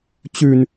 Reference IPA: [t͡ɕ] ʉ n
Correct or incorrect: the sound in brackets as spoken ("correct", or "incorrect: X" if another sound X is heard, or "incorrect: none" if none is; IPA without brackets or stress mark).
correct